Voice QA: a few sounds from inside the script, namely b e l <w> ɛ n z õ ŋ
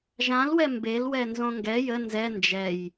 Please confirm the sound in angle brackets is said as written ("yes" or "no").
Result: yes